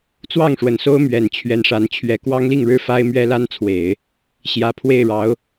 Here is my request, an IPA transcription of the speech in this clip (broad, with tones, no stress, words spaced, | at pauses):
t͡swɑ˥˩ŋʂwə˨˩nso˥ʊ̯ mɥɛ˨˩nt͡ɕʰɥɛ˧˥nʂa˧˥n t͡ɕʰɥɛ˧˥kwɑ˥ŋli˥˧ŋɻɻ̩˥˩ fa˥ɪ̯mɥɛ˥ la˥nt͡sʰwe˨˩˦ɪ̯ | ɕjä˨˩ pʰwe˥˩ɪ̯ɻɑ˧˥ʊ̯